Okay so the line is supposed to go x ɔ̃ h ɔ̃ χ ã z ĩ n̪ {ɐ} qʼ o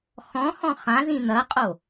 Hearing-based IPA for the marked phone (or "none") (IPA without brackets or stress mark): ɐ